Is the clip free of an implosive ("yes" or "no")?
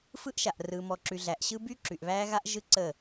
yes